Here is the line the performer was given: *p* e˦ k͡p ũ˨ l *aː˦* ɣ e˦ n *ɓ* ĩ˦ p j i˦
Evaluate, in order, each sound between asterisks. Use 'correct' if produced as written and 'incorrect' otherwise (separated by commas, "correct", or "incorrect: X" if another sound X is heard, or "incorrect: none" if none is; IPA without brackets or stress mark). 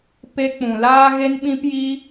correct, correct, correct